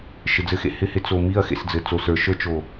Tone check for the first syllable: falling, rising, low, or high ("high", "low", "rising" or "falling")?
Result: low